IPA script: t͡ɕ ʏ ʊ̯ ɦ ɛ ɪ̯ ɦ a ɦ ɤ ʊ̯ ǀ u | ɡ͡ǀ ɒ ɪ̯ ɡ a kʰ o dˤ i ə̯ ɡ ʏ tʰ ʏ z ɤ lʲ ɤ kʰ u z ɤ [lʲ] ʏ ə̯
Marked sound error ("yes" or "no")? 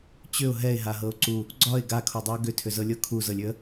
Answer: no